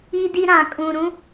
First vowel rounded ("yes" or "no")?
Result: no